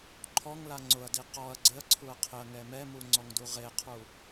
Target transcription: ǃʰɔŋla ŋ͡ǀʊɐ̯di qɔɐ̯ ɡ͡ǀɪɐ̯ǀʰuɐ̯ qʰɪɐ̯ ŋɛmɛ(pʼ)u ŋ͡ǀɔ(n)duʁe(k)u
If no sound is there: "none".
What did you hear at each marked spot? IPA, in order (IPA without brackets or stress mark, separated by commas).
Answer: m, ŋ, qʰ